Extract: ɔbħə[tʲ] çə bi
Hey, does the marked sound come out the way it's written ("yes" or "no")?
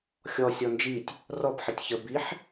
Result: yes